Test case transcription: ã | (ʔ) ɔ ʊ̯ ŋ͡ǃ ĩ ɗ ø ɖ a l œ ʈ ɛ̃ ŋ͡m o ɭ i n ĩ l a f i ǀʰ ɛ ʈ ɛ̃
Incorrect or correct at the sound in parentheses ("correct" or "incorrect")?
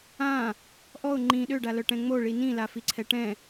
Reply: correct